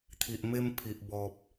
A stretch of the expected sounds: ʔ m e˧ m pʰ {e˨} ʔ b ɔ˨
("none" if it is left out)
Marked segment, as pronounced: i˨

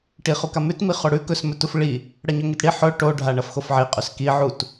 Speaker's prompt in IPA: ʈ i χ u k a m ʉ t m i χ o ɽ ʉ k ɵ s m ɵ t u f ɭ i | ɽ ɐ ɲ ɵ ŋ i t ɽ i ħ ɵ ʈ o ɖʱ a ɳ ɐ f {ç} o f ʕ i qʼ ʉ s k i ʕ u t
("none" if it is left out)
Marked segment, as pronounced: x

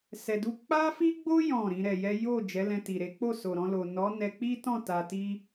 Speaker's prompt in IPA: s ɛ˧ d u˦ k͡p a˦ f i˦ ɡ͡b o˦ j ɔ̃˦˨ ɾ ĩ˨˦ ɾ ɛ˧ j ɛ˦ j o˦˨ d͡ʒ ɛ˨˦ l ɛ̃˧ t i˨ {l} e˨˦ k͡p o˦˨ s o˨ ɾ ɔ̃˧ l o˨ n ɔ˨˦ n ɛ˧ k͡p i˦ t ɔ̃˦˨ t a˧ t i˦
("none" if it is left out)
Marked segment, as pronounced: ɾ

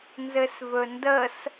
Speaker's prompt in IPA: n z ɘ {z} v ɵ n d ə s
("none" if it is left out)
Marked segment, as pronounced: s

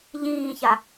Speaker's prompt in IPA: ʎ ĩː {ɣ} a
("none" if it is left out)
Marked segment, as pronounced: ç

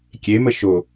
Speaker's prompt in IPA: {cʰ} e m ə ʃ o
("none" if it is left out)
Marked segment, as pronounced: kʲ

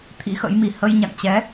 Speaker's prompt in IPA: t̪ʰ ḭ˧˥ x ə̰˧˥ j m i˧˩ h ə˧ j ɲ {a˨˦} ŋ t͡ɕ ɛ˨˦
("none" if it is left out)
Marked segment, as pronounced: a̰˧˨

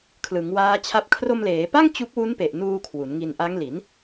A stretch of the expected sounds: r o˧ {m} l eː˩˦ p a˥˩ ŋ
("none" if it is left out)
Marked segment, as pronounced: m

